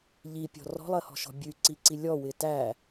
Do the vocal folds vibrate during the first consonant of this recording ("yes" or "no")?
yes